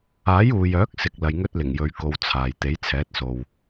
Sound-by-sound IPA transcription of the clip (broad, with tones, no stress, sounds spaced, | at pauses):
aː˨˥ j uː˨ j œː˨˥ k̚ s ɪ˨ k̚ l ɐ˧ j ŋ ɵ˥ t̚ l ɪ˨˩ ŋ j ɵ˧ ɥ k o˧ w t͡sʰ aː˨ j t̪ e˨˥ j t͡sʰ ɛː˨˥ t̚ s o˨ w